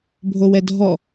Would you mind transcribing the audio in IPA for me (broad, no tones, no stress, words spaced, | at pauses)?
bʱowɛdʱɔ